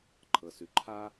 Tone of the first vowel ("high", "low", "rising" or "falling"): low